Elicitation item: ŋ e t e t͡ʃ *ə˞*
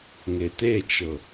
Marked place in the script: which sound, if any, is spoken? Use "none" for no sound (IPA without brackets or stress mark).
ɤ